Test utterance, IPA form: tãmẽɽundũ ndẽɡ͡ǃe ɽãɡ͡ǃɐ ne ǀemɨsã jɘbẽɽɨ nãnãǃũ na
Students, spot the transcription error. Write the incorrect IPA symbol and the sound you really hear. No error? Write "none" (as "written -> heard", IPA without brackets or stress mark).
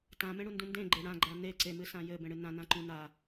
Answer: ɐ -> a